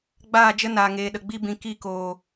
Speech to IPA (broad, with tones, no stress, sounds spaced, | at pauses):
ɡ͡b aː˦˨ d͡ʒ ə˦ n aː˨ ŋ eː˨ ɗ ə˨ ɡ͡b i˧ b ĩ˨ k i˦˨ k oː˨